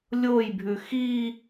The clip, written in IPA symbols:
lʲ o j bʱ ʉ x i

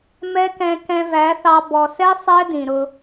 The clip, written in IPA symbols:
m ɛ˦ k ɛ̃˧ k ɛ̃˧ v æ˨˦ θ ɑ˧ b ɔ˨ s ɛ˦ sˤ ɛ˦ d ĩ˨ ɾ ʊ˧

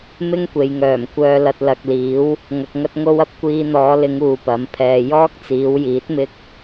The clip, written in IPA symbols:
m ɪ˥ ŋ kʷ e˨ j ŋ œː˨˩ m kʷ œː˧ l ɐ˧ t̚ l ɐ˨ k̚ l iː˨˥ w | ŋ ɐ˧ k̚ ŋ ɐ˥ t̚ ŋ o˥ w ɐ˧ p̚ kʷ iː˧ n̪ ɔː˨˧ l ɪ˨˧ ŋ uː˨˧ p ɐ˨˥ m pʰ ɛː˧ j ɔː˥ k̚ t͡s iː˨˧ w j iː˨˥ t̚ m ɪ˥ k̚

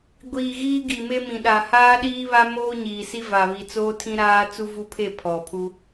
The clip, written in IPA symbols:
ɡʷ iː˨ ɣ iː˦ ɡ i˨ m e˦ m ĩ˨ ɗ a˨ h aː˦ ɗ iː˦ β a˦ m oː˦ ɲ iː˨ s i˦ v a˨ β i˨ t͡s oː˦ tʰ ĩ˦ ɾ aː˦ t͡s u˦ v u˦ pʰ e˦˨ pʰ ɔ˨ pʰ u˦

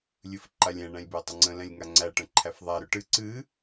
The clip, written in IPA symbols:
lʲ ɨ f ǃ a lʲ ɛ̃ ɳ æ̃ lʲ b ø tˤ ə ŋ͡ǀ ə̃ l ɛ̃ lʲ ŋ a ŋ͡ǀ æ ʈ ə̃ ǃʰ æ f ðˤ æ ɾ ø ʈ ɨ ǀ ɨ

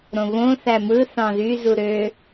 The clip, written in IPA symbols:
ɾ õ β õ θ æ m ɯ θ ɑ̃ ð y z u ɾ ø

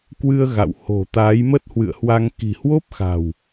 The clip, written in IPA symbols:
k w ɨ˧ ə̯ ɣ a̰˧˨ w h o̤˨˩ t̪ aː˨˦ j m ə˦˥ t̚ h w ɨ̰˧˨ ə̯ h w a˧ ŋ k i̤˨˩ h w o˦˥ p̚ x a̤˨˩ w

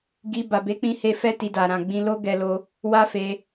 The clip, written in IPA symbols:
ɡ i˧ b a˨ b e˨˦ k͡p ĩ˧ h e˧ f ɛ˦ t i˧ d a˨ ɾ ã˨ ɡ͡b ĩ˧ l o˦ ɡ ɛ˧ l o˧ | w a˦ f e˧

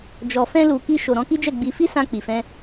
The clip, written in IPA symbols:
d͡ʒ ɔ˨ f ɛ̃˧ l u˨ k i˧ ʃ o˨ ɾ ɔ̃˨˦ k i˦ d͡ʒ ɛ˦˨ ɡ͡b i˧ f i˦ s ã˧ k͡p i˨ f ɛ̃˧

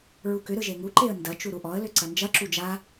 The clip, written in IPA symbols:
ɹ u k ʏ ɾ ɯ ʒ e ŋ u ǃ e ə̯ n d ɐ t͡ʃ u ɾ u ʔ ɔ ə̯ l ʏ ǀ ɐ n d͡ʒ ɐ ǁ u d͡ʒ a

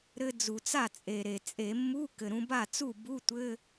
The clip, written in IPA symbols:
ɾ ɘ˧ d͡z u˩ t͡s a˥˩ t͡sʼ e˩ ɾ e˩ t͡sʼ e˧˩˧ mː u˧˥˧ k ɘ˩ ɾ ũ˧ b a˥˩ t͡s u˥˩ b u˧˥˧ tʷ ɘ˧˥˧

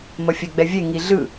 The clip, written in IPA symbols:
m ʌ fʲ ɛ ɡ͡b ɛ vʲ e ŋ i ɮ ɯ

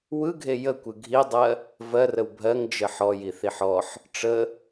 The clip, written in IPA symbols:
w ɯ ɡʱ e j ə kʷ ɯ ɡʱ i dˤ ɜ | v ɜ r ə w bʱ ɜ ŋ d͡ʒ ə ħ ɔ j i θ i ħ ɔ ħ | ʈ͡ʂ ə

